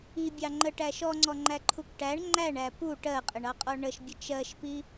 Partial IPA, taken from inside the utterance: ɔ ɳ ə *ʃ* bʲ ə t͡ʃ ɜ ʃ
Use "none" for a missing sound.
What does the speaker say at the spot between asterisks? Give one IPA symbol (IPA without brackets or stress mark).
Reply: ʃ